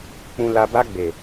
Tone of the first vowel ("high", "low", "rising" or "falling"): low